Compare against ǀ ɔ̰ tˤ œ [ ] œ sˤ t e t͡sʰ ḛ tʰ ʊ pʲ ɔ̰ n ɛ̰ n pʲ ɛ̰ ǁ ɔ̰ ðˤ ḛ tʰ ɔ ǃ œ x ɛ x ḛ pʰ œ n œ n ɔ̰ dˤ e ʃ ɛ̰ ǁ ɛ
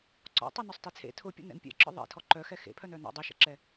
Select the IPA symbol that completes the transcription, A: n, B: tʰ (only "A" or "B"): A